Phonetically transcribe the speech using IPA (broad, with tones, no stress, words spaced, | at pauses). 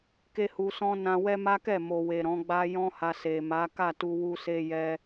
ke˦hu˧sɔ̃˦ nã˧ wɛ˦ma˦kɛ˦˨ mo˨we˨ ɾɔ̃˨˦ɡ͡ba˦ jɔ̃˦ha˧ se˨ma˨˦ ka˦˨tu˧ wu˧se˧ jɛ˧